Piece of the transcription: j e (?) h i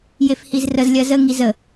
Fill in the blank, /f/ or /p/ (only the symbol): f